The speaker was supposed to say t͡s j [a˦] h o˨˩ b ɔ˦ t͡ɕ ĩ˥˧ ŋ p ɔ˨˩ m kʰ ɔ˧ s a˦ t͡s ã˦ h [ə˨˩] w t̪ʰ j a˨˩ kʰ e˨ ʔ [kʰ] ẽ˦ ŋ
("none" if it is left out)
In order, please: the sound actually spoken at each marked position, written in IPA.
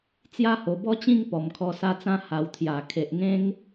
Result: a˦, a˨˩, ŋ

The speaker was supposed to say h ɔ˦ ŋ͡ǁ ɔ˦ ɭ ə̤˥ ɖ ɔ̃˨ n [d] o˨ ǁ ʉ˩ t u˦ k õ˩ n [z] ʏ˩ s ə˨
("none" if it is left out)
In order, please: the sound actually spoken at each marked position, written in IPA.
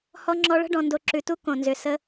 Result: d, z

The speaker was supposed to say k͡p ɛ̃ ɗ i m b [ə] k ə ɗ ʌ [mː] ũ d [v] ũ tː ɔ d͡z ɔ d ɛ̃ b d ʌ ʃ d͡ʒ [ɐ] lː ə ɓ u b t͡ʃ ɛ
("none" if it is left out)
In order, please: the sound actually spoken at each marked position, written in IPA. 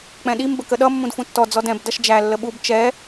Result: ə, mː, f, æ

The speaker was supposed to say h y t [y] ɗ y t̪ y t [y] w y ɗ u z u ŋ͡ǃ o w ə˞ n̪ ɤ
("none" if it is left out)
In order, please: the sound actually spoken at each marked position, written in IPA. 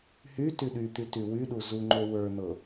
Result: y, y

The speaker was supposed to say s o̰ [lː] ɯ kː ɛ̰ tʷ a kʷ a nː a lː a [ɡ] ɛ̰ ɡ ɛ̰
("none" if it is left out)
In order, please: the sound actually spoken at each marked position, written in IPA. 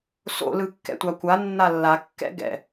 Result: l, kː

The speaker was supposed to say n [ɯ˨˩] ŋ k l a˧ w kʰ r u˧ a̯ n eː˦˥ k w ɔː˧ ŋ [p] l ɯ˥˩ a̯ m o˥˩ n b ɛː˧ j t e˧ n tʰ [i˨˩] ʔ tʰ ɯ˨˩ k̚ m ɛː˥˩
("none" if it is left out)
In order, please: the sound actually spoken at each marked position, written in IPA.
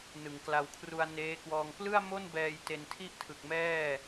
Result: ɯ˨˩, p, i˥˩

